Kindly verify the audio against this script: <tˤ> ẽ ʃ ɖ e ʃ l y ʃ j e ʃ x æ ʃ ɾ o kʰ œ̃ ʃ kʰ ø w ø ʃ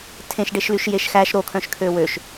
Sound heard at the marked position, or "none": tʰ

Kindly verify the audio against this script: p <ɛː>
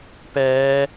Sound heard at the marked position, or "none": ɛː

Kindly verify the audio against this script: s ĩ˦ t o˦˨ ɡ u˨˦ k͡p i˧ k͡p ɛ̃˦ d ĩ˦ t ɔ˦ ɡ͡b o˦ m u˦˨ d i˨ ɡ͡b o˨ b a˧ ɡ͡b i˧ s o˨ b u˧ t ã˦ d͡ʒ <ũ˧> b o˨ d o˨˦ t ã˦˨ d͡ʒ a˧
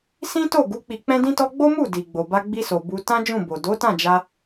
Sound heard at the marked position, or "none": ũ˦˨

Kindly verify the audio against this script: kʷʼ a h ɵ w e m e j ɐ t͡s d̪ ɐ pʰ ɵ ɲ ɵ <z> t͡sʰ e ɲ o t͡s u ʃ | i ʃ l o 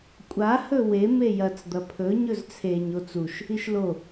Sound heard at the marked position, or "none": z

